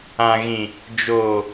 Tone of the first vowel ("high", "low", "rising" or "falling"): low